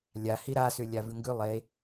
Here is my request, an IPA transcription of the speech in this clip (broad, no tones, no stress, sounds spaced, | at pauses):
lʲ a h i ɾ a s ʉ lʲ a v ʉ ŋ ɡ ʉ lˠ e